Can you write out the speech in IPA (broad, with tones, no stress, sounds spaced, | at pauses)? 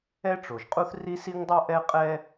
ɛ˥ ʈ͡ʂ o˩ ʒ qʼ u˥ θ r i˥ s i˥ ŋ dˤ o˥ ʔ ɛ˥ qʼ ɛ˥